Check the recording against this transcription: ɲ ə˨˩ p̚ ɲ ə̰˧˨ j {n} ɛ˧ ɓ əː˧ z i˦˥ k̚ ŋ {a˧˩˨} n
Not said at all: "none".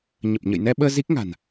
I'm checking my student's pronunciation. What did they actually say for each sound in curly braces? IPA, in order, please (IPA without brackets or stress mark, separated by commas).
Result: n, a̤˨˩